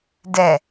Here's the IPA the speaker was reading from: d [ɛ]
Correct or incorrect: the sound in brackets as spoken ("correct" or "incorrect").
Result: correct